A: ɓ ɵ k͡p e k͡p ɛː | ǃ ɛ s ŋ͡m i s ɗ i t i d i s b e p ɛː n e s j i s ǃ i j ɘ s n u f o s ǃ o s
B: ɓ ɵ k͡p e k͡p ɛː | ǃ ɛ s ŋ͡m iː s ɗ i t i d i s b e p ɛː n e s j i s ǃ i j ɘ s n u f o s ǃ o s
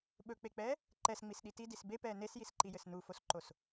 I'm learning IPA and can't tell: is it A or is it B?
A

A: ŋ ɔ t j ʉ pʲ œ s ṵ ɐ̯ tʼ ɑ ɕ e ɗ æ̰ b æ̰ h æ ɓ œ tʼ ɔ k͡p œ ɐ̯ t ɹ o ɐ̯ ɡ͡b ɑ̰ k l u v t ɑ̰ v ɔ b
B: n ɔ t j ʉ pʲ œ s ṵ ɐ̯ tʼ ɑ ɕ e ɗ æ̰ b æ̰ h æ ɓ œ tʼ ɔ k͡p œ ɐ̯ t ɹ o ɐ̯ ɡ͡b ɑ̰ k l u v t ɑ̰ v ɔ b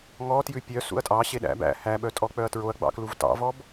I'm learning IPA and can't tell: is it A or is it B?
A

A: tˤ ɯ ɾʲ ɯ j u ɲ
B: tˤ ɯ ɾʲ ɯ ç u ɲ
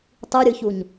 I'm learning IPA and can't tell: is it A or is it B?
B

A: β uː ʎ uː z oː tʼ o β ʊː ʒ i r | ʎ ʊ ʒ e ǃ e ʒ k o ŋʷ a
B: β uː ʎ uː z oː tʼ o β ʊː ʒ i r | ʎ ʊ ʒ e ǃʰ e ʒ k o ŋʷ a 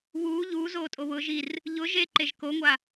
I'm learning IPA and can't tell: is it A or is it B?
A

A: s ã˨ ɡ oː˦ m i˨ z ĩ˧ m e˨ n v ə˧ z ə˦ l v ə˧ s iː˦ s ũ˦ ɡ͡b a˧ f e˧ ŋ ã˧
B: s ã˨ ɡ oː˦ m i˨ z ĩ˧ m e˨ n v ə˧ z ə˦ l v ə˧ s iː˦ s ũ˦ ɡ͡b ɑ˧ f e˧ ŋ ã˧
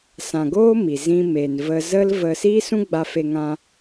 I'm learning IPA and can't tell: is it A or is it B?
A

